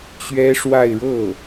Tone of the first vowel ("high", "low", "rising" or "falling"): high